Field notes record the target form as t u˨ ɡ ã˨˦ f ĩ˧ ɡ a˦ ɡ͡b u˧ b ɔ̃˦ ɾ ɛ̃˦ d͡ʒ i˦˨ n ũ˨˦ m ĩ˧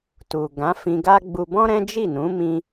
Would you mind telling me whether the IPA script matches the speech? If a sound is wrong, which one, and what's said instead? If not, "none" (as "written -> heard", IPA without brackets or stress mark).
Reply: none